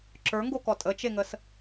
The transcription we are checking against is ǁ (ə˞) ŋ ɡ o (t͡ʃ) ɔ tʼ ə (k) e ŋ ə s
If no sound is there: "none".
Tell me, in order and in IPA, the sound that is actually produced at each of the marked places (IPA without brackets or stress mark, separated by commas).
ə˞, k, t͡ʃ